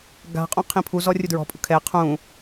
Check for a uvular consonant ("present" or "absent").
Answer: present